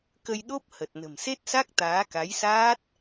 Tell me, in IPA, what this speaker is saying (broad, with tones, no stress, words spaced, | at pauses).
kə˧jɗo˦˥p̚ hə˨˩t̚ nə̤˨˩mse˦˥t̚sa˦˥k̚ t̪aː˨˦ka˨˦jsaː˦˥t̚